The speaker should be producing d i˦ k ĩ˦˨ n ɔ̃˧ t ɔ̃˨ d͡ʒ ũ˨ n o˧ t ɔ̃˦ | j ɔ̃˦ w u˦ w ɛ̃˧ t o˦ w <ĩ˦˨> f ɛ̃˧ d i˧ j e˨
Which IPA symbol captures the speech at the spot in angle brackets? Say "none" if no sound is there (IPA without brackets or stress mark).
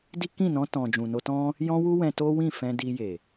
ĩ˦˨